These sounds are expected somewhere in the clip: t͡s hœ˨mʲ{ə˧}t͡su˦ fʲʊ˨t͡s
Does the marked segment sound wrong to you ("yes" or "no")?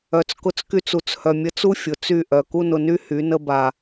no